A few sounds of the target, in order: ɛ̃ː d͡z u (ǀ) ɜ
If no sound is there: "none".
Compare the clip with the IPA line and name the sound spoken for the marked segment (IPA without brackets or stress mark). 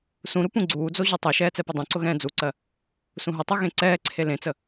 ǀ